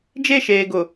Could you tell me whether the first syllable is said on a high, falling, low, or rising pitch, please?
falling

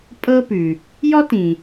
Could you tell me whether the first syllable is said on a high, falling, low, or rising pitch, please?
high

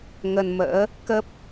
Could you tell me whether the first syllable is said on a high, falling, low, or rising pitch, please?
low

